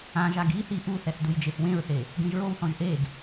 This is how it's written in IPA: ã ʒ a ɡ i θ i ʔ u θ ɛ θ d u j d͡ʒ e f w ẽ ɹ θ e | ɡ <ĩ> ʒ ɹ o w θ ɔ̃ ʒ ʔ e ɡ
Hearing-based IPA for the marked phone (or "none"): ẽ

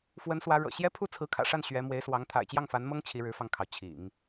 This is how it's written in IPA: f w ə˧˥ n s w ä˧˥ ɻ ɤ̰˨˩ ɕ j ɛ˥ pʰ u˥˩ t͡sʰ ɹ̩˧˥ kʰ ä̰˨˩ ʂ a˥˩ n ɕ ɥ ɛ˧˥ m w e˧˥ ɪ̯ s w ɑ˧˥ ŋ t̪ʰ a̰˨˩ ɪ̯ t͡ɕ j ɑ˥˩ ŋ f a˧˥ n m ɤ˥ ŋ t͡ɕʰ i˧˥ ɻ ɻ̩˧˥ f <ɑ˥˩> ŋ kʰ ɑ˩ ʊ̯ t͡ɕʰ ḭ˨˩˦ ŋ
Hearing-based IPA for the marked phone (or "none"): ɑ˧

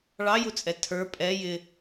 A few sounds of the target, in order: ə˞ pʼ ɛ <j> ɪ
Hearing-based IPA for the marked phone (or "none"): j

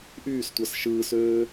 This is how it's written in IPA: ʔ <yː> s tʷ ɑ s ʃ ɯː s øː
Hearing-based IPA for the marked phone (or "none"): yː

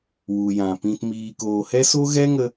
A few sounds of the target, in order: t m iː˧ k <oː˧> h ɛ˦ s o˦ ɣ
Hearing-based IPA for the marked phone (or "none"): oː˧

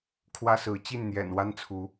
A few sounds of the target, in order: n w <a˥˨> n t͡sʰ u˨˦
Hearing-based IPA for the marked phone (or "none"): a˦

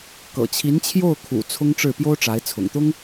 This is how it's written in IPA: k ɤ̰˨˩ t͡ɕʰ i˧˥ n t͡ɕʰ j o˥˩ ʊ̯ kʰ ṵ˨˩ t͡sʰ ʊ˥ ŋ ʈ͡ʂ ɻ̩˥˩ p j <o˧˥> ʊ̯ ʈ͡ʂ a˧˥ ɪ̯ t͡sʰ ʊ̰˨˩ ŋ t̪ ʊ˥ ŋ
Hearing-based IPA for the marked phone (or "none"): o˥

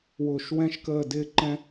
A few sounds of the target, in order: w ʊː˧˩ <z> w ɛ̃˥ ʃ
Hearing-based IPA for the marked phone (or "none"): ʃ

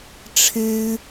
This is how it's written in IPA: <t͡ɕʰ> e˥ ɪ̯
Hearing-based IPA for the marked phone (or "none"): ʈ͡ʂʰ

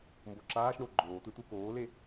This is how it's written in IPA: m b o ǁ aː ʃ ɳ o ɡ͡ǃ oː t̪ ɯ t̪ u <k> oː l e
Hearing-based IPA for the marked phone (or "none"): k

